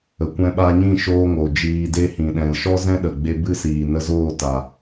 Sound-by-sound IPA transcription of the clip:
ə˨ kʷ ɛ̃˧ ɓ a˧ ɲ ĩ˦˨ ʃ oː˧ ŋ o˨ d͡ʒ iː˧ d e˦ h ĩ˨ ɗ ɛ̃˨ l ʃ ɔ˦ z ɛ̃˦ ɗ ə˨ ɡ͡b e˧ b ɨ˦ s iː˨ n ə˧ z oː˦˨ t a˨

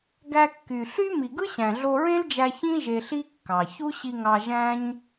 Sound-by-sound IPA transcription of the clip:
ɡ æ˧ kː y˨ ɬ y˦ m i˨ ɡ ɯ˦ ɕ æ̃˨ ɮ o˧ ɹ ẽ˦ l d͡ʒ æ˧ ç ĩ˦ ʒ e˧ ɬ i˦ kː ɑ˨ ç u˦ ɕ i˧ ŋ ɑ˧ ʒ æ̃˦ ɲ

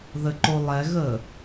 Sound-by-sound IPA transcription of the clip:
ð ə ǃ o lˠ ɛ ɣ ə

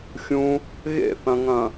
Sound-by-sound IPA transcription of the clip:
xʲ ũ | ɣ ḛ θ ɐ̃ ŋ ɐ̃

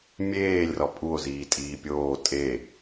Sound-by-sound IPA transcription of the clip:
mʲ eː lʲ r ɒ pʼ u o̯ z iː tʼ iː pʲ oː tʼ e

